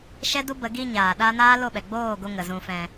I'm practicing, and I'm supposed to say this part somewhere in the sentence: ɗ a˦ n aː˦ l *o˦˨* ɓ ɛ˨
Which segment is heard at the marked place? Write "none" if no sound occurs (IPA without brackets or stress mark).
o˦˨